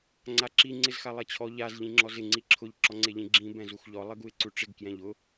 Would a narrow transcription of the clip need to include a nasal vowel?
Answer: yes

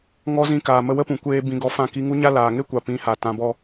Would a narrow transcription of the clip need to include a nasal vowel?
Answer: yes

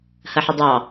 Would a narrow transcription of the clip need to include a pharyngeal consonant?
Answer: yes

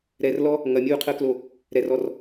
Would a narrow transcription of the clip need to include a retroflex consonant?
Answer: no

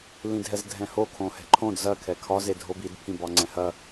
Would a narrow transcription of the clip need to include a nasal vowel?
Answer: yes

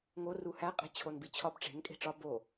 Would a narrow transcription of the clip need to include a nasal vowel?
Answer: no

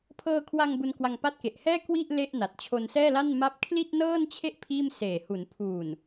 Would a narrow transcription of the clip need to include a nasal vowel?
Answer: no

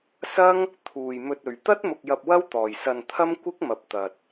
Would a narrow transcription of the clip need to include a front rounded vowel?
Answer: no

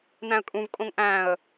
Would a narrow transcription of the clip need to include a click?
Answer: no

